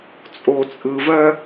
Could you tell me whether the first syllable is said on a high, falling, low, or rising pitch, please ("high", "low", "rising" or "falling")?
low